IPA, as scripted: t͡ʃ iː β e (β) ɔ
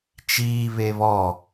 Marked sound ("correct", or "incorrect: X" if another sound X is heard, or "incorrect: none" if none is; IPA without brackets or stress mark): correct